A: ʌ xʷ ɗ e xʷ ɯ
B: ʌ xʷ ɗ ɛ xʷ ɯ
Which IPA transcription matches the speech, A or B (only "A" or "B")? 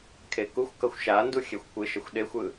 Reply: A